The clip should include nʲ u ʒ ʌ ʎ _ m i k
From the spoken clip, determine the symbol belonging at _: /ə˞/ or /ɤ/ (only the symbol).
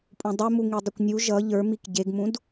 ə˞